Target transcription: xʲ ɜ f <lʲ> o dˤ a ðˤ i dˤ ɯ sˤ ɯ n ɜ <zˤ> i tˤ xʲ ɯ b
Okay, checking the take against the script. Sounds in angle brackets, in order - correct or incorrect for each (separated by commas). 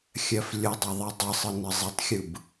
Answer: correct, correct